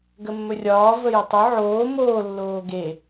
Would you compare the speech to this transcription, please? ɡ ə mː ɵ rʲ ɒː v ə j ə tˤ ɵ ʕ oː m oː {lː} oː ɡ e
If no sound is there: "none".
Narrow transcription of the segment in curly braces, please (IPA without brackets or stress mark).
lː